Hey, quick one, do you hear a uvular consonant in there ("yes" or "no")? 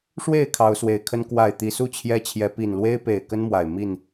no